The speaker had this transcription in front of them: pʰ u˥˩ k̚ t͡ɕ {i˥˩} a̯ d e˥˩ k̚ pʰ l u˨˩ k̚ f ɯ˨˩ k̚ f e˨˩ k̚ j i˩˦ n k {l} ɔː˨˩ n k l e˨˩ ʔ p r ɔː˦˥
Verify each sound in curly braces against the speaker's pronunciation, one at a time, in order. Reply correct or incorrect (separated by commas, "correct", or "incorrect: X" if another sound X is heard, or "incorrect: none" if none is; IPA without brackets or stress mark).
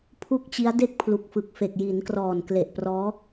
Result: incorrect: i˦˥, incorrect: r